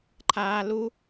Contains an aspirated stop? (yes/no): yes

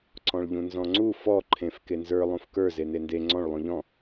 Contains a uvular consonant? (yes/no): no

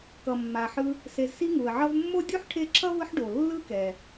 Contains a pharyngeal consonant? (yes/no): yes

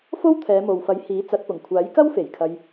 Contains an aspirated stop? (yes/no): yes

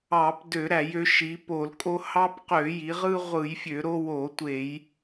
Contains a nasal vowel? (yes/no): no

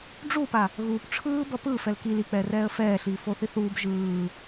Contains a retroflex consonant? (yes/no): yes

